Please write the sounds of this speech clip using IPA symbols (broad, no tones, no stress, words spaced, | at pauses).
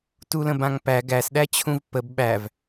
tulə̃bãŋpæ ɡæsɗæt͡ɕʰũv pəb ɓæv